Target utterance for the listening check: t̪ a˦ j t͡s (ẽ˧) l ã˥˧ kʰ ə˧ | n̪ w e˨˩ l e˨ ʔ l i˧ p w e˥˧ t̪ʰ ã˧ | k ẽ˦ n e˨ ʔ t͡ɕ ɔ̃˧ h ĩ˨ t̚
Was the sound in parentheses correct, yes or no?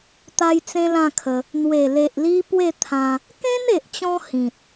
no